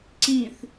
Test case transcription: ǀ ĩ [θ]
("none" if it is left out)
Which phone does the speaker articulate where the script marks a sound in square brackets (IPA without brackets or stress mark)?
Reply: θ